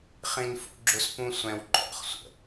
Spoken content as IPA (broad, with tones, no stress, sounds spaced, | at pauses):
χ ĩ˥ n f ṵ˥ ɡ͡ǁ ʊ˥ s p ũ˥ sʷ ɛ̃˥ w ǃʼ ɔ̰˥ χ sʷ ə̰˩